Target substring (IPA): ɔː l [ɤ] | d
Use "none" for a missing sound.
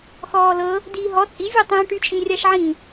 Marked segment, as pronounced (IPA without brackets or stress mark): ɤ